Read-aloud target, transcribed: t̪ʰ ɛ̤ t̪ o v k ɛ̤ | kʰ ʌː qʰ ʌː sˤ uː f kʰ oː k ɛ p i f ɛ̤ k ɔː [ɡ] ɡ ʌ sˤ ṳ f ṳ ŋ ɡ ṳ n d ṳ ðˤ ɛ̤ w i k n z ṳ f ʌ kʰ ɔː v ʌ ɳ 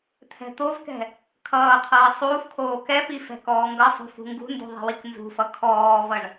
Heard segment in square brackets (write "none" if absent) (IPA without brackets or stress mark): ŋ